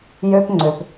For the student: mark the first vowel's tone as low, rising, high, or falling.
high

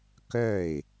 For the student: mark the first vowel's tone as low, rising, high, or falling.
falling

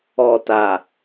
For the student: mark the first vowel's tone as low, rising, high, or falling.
low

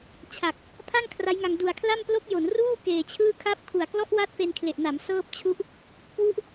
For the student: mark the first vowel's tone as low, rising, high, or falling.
low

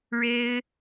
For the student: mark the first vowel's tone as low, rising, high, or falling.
high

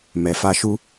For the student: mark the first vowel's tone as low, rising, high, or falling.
low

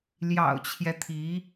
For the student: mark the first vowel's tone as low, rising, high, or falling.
low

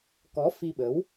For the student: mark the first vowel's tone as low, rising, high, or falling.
rising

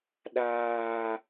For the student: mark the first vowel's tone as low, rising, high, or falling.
low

